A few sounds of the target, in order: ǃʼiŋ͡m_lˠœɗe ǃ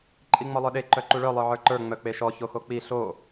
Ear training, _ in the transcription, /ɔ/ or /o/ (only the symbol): ɔ